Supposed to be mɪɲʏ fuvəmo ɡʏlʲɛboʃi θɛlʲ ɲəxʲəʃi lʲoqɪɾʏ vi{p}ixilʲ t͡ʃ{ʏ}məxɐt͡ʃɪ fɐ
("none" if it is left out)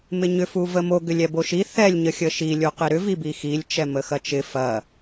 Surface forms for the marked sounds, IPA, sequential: b, ɛ

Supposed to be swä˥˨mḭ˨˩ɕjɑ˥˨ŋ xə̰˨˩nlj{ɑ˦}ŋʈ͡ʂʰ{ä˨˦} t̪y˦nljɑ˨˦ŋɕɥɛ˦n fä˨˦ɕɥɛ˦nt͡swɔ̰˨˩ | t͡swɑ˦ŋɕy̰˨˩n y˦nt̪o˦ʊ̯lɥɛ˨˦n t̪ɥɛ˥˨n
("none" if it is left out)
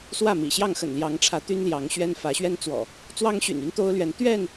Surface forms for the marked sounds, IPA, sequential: ɑ˨˦, ä˨˦

